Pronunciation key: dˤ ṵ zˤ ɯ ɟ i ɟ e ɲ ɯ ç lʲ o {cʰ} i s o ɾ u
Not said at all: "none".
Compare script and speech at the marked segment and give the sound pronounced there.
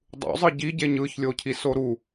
cʰ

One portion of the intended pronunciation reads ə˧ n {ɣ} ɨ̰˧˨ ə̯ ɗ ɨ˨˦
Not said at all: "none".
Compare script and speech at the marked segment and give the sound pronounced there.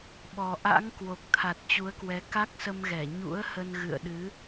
ɣ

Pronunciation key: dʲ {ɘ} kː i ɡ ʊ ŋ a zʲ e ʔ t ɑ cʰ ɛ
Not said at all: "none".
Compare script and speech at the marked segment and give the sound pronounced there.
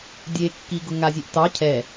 e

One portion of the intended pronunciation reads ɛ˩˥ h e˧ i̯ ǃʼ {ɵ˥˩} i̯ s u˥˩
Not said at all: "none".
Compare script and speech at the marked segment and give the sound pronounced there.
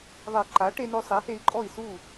ɔ˥˩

